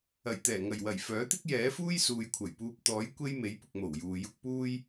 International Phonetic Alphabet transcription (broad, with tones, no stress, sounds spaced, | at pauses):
ɐ˨˩ j t̪ ɛː˨˩ ŋ ɐ˨˩ j w ɐ˨˩ j f œː˨˥ t̪ ɪ˥ k̚ j ɛː˨˥ f uː˥ j s uː˨ j kʷʰ ɐ˨˩ j p uː˧ p̚ t̪ ɔː˨˥ j kʷ e˥ j m e˨˥ j p ʊ˨ k̚ m o˨˩ w j uː˨ j ʊ˥ k̚ p uː˥ j